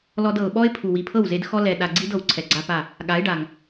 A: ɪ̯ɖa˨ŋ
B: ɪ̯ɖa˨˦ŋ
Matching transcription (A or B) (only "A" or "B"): A